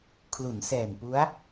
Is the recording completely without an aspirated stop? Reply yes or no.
no